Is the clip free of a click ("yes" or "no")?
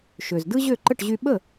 no